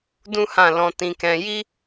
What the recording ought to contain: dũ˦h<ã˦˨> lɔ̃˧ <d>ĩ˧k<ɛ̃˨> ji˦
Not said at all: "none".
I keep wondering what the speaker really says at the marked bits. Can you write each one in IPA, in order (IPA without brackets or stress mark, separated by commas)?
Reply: ã˦˨, t, ɛ̃˧